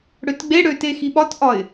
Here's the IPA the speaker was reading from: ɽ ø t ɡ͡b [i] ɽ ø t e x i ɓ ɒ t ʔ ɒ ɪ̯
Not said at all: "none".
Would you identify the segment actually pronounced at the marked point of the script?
e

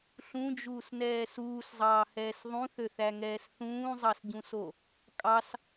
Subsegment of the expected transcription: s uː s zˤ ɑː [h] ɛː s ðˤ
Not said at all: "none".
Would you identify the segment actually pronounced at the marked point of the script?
h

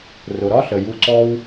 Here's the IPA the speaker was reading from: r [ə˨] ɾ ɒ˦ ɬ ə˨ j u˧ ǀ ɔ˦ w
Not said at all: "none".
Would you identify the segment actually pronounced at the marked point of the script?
ʊ˨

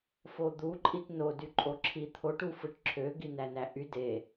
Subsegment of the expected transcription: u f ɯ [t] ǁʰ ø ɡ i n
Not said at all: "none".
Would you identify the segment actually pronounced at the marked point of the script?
ʈ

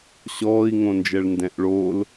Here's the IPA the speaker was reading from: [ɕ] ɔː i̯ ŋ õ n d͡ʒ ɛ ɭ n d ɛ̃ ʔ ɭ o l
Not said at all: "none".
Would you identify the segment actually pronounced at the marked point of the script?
ɕ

